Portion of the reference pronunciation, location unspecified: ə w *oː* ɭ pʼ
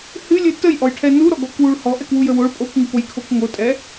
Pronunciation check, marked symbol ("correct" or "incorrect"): incorrect